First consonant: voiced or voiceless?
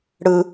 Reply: voiced